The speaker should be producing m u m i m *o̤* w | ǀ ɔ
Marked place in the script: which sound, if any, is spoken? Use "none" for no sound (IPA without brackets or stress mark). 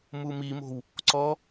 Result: o̤